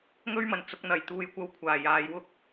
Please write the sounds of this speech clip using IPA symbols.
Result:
ŋɵ˥ɥmɐ˨˩n t͡sʊ˧k̚n̪ɐ˨jt̪uː˧jkʷɐ˧w kʷʰaː˨˩ jaː˨˧jwʊ˥k̚

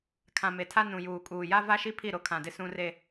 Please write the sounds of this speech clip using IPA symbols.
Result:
kʰã˨ me˨tʰa˦ nũ˨juː˨kʼuː˨ja˦ va˦ʃi˦ pʰi˦˨ɾo˦kʰã˨dɪ˦ sũ˦re˦

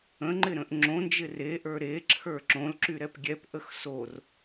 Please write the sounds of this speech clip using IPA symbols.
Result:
ə̃ŋ͡ǃɪɾə̃ʔ ŋ͡ǁõnd͡ʒɪ reʔə˞ ɾeǁʰə˞ ǁõlǁyɾɛp ɡʲɛpʔəx sor

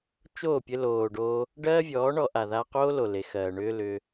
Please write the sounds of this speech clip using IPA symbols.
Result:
t͡ʃoː˦˨pʲɘ˧loː˨ɖoː˧ | ɖɜː˦vʲɔː˨˦ɳɔ˧ʔa˨ ðaː˧qoː˦lo˨ le˨xɜː˨ ɳʏː˦lʏː˧

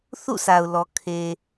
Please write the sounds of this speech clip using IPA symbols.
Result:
θṵ˦˨sʰa˨ʊ̯ lɔ˨ kʰe˨

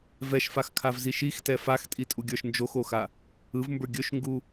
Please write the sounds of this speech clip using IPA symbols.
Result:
vɛʃfaxkʰavzi ʃixtɛ faxtʼitʼuɡʲə˞ʃ nd͡ʒoxoxa | ɯvmbə˞ ɡʲɵʃŋɡu

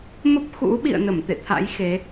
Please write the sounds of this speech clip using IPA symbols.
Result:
mə˦˥p̚xṵ˧˥ɓḭ˧˨ə̯nə˧˩m t̪ḛ˧˨t̪ʰa̰˧˥j xe˨˦

